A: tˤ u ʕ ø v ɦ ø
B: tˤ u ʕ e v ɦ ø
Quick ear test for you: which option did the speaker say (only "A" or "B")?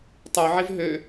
B